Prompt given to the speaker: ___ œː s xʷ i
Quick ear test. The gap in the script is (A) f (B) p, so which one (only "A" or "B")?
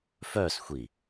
A